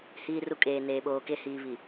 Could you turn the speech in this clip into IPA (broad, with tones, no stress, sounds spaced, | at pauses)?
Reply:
h iː˨ r u˨ kʼ eː˨ n eː˨ ɓ oː˨ k e˨ h iː˨ β i˨